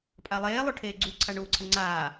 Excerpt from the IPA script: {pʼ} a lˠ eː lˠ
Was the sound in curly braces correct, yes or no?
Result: yes